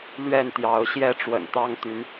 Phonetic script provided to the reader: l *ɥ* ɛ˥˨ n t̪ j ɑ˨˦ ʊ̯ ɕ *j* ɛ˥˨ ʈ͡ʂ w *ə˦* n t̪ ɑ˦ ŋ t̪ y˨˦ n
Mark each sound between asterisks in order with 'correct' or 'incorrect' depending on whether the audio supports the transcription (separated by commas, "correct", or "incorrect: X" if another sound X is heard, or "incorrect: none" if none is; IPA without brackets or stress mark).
correct, correct, incorrect: ə̰˨˩